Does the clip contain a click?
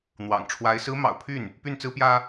no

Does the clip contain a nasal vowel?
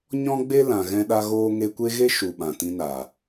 yes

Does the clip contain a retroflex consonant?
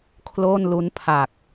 no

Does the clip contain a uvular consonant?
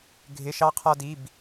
yes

